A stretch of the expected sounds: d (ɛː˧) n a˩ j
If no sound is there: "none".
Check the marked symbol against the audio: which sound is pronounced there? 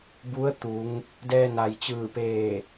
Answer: ɛː˧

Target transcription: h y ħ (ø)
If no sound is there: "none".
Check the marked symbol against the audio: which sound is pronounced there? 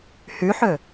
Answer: ø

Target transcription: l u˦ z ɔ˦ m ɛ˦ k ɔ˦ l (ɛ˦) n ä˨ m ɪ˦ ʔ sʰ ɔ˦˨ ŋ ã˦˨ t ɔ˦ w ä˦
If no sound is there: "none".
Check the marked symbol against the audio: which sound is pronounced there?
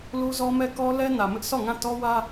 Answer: ɛ˦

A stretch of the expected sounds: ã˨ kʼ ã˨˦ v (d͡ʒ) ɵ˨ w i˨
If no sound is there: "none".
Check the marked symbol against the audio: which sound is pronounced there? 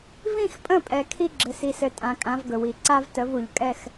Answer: ɡ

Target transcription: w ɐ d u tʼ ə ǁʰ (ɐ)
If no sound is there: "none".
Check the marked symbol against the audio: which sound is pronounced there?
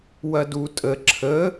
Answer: ə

